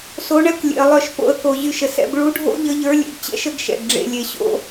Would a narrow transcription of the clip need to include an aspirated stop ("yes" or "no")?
no